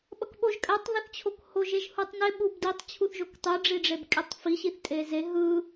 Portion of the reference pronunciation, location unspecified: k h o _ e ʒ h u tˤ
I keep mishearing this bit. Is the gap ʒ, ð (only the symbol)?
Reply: ʒ